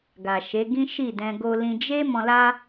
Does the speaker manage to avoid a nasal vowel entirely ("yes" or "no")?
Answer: no